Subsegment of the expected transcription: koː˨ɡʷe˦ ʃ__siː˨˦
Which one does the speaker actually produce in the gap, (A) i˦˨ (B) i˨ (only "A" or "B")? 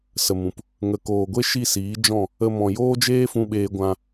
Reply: A